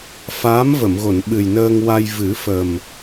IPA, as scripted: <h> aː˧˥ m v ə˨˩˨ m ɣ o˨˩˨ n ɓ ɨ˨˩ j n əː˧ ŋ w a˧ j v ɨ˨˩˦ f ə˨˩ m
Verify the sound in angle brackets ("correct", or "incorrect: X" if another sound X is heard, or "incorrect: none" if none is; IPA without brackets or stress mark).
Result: incorrect: f